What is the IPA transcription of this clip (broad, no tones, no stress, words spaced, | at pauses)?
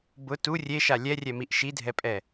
bʊ tu rʲeʃa lʲɛrʲɛmiʔ ʃidʱɛpʼɛ